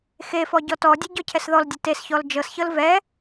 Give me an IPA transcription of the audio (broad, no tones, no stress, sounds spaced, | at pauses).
x e f ɔ ɟ ɔ t ɔ dʲ ɛ ɟ ɔ cʰ ɛ s ð ɔ l dʲ e t e s ç ɔ l d͡ʒ ɤ s ç ɤ l v ɛ